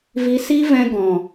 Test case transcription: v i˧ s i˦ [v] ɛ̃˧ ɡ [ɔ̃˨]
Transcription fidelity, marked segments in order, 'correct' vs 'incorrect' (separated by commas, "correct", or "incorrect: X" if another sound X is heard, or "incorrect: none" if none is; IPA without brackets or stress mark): correct, correct